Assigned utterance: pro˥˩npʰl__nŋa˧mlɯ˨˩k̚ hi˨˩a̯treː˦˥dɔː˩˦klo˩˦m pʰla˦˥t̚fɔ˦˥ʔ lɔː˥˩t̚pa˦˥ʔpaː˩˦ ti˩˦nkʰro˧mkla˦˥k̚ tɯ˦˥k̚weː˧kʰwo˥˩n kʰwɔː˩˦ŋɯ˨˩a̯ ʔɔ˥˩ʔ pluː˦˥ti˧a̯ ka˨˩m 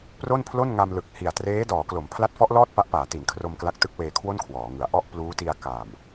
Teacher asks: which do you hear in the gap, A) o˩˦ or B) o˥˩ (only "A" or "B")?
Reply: B